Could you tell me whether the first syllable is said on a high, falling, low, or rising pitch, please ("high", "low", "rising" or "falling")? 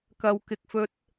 low